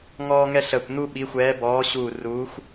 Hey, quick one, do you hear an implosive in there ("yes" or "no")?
yes